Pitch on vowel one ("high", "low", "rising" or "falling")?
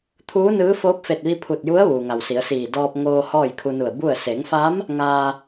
rising